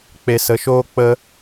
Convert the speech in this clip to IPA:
k͡p e˧ s ə˧ ʃ oː˦ k͡p ə˧

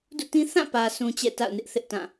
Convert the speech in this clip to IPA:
d ṵ˦˨ t ĩ˦ θ ã˦˨ p ä˨ sʰ ũ˨ t͡ɕ ɛ̰˦˨ t a̰˦˨ ʊ̯ n ɪ˦ ʔ θ ɪ˦ ʔ t ã˦˨

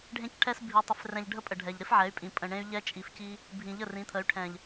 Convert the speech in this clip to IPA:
ɖʱ ẽ˧ c ʈʰ ɛ˧ s bʱ i˨ tˤ ɪ˨ f r ɛ̃˨ ʎ ɖʱ ə˦ pʼ ə˨ ɖʱ ɛ˨ ʎ ɾ ɪ˦ f ʕ ɛ˨˦ y̯ pʼ ĩ˨ pʼ ə̃˨ ɳ ẽ˧ y̯ ʎ ɛ˧ t͡ʃʼ i˨ f c i˧ | bʱ ĩ˨ ʎ ə˦˨ r ĩ˨˦ t̪ʰ ə˨˦ y̯ ʈʰ ɛ̃˨ ʎ

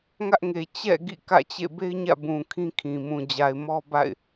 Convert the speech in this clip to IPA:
ŋ ä˦ ʔ ŋ e˨ t͡ɕ ɛ̰˦˨ ɡ ḭ˦˨ k ä̰˦˨ t͡ɕ ḛ˦˨ b e˦ ɪ̯ ɲ ä̰˦˨ b ũ˨ kʰ ĩ˦ kʰ ĩ˨ m ũ˨ d͡ʑ a˨ ɪ̯ m ɔ˦ b a̰˦˨ ɪ̯

